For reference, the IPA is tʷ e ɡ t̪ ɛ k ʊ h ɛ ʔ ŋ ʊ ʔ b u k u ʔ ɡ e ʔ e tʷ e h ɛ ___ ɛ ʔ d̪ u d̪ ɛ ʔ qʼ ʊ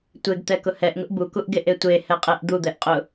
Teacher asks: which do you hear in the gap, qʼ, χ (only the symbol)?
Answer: qʼ